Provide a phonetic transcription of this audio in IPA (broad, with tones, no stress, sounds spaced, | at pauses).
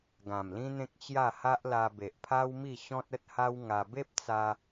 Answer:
ɡ ã˨˩ m l ĩ˦ n̪ ẽ˦ k̚ t͡ɕ j a˥˧ h a˦ ʔ l a˧ b e˨ ʔ pʰ a˦ w m i˥˧ ɕ ɔ̃˦ t̚ ə˦ t̚ h a˦ w ŋ a˧ b e˦ p̚ t͡s a˧